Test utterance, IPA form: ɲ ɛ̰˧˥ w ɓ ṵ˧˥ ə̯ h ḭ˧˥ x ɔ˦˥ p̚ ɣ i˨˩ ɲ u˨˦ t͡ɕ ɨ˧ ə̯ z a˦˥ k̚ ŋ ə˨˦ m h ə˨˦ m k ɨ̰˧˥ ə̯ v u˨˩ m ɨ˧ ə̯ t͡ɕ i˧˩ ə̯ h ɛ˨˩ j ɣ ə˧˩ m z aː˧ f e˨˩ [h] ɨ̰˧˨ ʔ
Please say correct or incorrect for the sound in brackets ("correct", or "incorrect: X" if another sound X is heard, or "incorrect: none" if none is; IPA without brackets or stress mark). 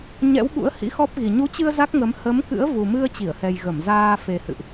correct